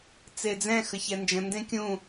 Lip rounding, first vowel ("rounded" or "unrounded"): unrounded